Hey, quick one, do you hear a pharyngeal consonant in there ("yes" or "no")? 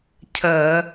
no